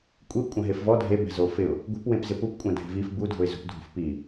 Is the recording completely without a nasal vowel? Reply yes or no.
no